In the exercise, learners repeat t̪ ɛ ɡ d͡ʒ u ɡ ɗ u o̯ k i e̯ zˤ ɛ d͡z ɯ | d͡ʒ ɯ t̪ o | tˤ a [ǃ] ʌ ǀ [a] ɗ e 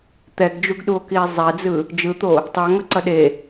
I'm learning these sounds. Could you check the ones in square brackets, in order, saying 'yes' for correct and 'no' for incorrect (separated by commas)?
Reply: no, no